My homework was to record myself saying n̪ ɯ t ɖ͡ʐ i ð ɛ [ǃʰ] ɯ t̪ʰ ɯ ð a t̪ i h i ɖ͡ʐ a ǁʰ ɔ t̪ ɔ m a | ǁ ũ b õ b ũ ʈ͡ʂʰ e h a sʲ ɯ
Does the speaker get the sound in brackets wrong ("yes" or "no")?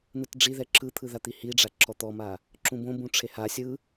yes